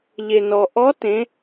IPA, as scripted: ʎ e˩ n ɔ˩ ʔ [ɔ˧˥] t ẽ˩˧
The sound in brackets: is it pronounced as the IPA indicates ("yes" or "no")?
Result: yes